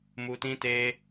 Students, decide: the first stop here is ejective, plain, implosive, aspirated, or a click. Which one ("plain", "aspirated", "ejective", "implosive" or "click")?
plain